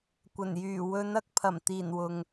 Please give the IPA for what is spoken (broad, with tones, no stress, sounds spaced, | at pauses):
kʷ ɐ˨˩ n j yː˨˩ w ɵ˨˧ n ɐ˧ k̚ pʰ ɐ˨˩ m t̪ iː˨˩ n w ʊ˨ ŋ